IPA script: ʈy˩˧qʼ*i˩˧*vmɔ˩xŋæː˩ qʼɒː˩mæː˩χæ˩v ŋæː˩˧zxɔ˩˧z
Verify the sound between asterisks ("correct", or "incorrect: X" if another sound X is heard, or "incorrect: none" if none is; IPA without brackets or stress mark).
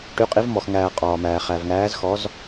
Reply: correct